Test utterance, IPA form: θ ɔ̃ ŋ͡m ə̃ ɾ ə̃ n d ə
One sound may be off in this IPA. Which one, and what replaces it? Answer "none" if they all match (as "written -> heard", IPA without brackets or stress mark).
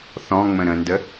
none